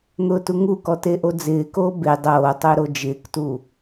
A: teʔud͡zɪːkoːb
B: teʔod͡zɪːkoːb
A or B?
B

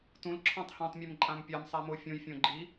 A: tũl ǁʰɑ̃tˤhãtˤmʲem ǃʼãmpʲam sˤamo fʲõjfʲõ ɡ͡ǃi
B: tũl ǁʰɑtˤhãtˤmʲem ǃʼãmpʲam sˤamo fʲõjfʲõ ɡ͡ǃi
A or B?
A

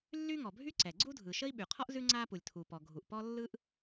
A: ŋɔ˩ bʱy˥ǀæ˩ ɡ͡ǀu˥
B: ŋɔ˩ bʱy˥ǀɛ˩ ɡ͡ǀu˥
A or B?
B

